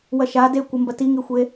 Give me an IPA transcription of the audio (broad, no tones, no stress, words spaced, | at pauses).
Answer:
wɐʃa dekʷɐmbɐ tiŋixʷe